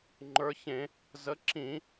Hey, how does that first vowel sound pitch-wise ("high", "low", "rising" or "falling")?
rising